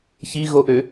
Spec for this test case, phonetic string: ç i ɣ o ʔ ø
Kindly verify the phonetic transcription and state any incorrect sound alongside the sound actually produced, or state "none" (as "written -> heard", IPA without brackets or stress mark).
none